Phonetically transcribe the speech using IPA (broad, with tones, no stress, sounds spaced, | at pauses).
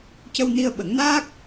c ə˧ w n i˧ ə̯ ɓ ə˨˩˦ ŋ n aː˦˥ k̚